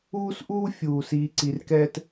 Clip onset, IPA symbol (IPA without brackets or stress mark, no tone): uː